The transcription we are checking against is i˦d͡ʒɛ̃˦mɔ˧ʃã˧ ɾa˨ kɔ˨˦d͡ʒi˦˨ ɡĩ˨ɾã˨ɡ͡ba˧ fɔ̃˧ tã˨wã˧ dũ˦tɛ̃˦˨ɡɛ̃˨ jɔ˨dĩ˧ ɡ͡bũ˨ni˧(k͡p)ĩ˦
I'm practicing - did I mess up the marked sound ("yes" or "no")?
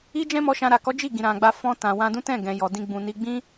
yes